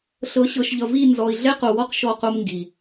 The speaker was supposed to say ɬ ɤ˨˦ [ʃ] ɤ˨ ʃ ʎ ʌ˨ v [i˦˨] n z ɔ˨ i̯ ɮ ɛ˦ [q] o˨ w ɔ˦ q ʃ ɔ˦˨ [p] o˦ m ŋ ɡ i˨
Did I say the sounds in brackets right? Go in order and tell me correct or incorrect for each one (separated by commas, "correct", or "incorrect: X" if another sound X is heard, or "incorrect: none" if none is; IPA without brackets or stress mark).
incorrect: ɕ, correct, correct, incorrect: q